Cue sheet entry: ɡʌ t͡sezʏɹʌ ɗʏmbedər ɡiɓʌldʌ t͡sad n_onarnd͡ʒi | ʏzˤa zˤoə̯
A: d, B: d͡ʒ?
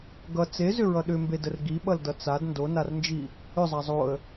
A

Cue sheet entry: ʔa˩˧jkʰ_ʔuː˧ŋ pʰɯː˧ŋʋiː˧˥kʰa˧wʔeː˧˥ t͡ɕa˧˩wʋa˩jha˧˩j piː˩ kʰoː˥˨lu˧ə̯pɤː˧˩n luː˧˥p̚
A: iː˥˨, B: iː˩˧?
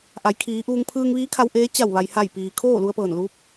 B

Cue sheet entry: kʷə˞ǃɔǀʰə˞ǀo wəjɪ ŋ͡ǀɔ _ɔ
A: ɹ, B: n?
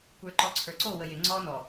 B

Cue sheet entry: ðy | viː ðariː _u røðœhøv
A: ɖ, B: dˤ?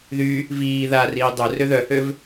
B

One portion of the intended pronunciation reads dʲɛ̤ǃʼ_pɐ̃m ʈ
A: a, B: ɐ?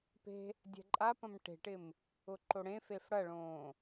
A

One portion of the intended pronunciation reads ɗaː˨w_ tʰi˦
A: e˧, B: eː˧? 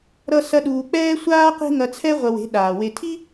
A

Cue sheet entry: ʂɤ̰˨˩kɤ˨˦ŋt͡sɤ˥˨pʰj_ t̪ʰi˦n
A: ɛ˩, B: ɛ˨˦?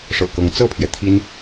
A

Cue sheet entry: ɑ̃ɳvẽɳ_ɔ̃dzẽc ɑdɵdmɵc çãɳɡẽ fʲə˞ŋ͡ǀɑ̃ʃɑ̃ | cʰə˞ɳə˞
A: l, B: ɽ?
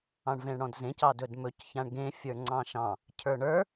B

